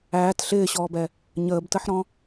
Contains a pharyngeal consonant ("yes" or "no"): yes